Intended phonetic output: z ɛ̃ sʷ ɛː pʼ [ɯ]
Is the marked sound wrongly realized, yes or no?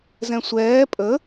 yes